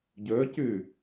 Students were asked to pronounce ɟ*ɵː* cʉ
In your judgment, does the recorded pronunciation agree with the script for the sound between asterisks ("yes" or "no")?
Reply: yes